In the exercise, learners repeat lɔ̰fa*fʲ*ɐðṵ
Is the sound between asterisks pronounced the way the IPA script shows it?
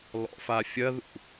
yes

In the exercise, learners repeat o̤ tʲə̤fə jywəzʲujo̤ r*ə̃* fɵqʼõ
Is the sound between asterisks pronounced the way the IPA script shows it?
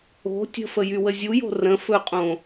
yes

